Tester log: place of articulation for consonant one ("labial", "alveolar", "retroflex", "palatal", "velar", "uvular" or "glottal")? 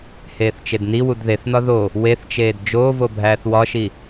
glottal